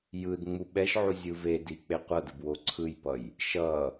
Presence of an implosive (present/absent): present